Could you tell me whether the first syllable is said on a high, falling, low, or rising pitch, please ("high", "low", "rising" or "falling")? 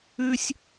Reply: high